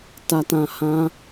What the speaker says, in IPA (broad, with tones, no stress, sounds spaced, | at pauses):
t a˦ t ã˦ h ã˦